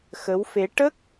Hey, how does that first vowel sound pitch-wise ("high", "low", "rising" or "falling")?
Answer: rising